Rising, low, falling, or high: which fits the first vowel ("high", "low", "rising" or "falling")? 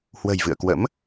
low